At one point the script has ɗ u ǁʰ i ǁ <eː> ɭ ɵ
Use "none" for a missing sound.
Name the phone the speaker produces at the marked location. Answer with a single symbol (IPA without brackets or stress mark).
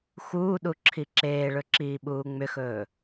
eː